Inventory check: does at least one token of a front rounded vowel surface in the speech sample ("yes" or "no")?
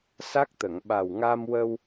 no